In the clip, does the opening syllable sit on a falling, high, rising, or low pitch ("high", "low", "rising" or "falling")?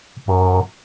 high